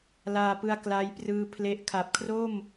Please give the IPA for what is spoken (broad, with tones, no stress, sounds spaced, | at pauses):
l aː˧ p ɯ˧ a̯ k l a˦˥ j p r ɯː˦˥ pʰ l e˦˥ ʔ kʰ a˨˩ p̚ kʰ r o˥˩ m